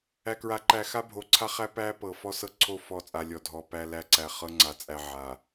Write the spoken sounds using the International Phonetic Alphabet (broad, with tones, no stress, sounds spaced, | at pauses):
æ˨ k ɹ a˨ ǃ æ˨ x a˦ bʱ o˨ ǀʰ a˦ χ æ˦ p æ˦ p ɤ˨ f ɔ˦ s ɤ˦ ǀʰ o˦˨ f ɔ˦˨ t͡sʼ a˨ lʲ ɔ˨ dʱ ɔ˨ p æ˦ l æ˦ ǀ æ˨ χ ɤ˦ ŋ͡ǀ a˨ t͡sʼ æ˨ ʕ a˨